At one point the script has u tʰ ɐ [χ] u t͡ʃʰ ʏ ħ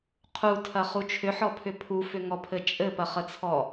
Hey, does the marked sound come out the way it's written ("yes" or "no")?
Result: yes